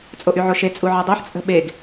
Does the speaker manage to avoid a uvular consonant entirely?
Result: yes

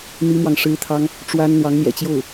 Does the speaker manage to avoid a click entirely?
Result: yes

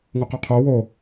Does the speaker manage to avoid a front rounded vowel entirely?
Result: no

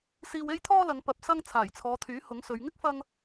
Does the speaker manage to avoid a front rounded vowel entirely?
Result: no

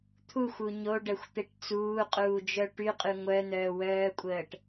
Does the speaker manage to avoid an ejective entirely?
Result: no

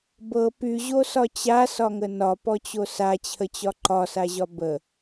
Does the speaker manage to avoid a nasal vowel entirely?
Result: yes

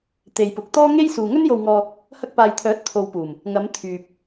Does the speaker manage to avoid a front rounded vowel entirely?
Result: no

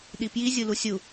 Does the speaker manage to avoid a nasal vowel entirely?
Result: yes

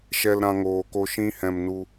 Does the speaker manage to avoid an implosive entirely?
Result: yes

